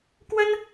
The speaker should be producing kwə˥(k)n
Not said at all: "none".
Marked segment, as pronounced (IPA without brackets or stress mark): none